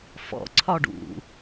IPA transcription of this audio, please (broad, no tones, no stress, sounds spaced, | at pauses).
f ɔ̰ ǀʰ ɒ ɖ ṵ